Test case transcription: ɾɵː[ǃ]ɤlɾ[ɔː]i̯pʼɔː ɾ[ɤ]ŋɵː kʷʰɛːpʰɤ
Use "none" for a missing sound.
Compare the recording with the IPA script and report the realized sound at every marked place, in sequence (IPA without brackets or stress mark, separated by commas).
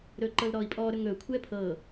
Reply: ǃ, ɔː, ɵ